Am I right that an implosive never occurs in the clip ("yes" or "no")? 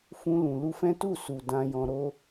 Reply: yes